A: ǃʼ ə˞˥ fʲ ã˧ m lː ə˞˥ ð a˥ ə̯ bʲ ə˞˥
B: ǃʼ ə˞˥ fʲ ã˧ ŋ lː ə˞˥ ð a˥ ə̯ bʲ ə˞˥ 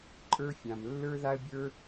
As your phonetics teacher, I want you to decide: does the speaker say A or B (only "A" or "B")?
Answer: A